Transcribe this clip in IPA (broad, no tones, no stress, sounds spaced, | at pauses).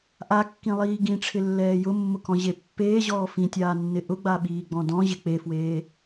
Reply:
ʔ a kː ĩ lˠ iː ɡ ĩ ʈ͡ʂʰ ɪ lː ɛː j ʊ mː ʊ k ɔ̃ ʑ e pː eː ʑ ɔː f ĩ tʲ aː nː ɪ ʔ ʊ ɡ͡b a ɓ iː ɡ͡b ɔ̃ d ɔ̃ ʑ ɪ k͡p e f w eː